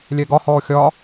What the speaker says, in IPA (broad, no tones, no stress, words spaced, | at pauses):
lʲɛɡɒhɔː xʲɒ